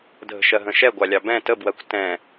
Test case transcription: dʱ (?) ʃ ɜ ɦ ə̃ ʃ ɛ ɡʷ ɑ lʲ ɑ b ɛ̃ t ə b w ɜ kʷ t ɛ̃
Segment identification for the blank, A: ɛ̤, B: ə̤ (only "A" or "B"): B